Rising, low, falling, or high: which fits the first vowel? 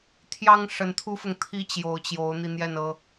high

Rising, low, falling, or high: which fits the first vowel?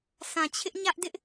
low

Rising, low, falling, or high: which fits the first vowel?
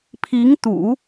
rising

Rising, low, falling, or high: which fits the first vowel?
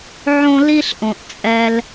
high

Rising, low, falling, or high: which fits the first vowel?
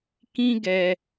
high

